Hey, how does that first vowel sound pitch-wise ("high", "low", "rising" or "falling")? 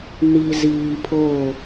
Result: low